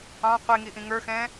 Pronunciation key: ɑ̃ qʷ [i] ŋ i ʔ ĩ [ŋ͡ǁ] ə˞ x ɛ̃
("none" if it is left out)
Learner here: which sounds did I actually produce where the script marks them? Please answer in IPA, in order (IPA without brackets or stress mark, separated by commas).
i, ŋ